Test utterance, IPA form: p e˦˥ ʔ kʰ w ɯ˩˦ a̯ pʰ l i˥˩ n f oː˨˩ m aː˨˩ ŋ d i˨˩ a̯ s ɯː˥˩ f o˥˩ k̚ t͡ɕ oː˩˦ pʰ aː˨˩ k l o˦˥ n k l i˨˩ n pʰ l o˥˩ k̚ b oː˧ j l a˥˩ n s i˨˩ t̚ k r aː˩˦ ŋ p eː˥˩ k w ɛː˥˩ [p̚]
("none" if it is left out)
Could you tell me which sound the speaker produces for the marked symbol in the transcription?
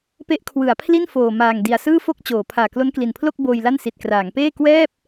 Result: p̚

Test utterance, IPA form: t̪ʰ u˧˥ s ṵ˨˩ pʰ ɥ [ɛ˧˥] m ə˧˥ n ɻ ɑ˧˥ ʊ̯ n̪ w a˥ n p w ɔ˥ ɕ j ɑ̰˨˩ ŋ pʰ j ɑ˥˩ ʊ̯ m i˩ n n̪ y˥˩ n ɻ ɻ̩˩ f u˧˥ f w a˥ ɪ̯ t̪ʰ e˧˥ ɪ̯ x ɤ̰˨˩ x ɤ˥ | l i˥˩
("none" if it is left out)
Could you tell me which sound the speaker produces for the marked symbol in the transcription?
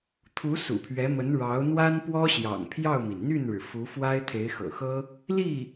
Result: ɛ˧˥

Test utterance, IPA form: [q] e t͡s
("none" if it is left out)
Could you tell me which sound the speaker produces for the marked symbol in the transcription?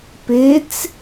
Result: p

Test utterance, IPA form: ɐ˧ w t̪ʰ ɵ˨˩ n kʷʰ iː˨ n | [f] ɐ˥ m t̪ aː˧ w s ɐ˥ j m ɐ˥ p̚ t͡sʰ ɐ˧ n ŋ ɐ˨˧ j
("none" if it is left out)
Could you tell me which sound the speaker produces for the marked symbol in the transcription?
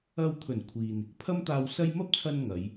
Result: pʰ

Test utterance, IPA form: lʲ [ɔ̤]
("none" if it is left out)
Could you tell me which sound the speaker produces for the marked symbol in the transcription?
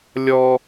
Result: ɔ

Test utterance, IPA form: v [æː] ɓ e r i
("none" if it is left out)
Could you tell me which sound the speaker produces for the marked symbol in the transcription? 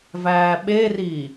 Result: æː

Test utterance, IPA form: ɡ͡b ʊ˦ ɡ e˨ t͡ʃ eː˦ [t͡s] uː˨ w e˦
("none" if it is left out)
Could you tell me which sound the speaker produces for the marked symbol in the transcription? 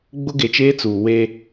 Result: t͡s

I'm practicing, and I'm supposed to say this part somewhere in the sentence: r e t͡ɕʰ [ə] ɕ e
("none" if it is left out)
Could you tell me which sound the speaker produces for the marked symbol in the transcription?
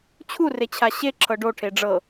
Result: a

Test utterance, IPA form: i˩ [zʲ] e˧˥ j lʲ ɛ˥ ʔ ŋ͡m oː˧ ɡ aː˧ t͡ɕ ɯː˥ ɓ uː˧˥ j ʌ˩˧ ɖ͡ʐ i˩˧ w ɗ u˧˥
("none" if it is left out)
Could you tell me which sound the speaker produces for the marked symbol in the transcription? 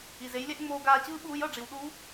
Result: z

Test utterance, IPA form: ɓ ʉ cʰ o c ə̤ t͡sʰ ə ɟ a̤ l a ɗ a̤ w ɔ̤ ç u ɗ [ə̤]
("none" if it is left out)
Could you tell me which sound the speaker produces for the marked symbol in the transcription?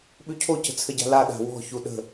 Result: ə̤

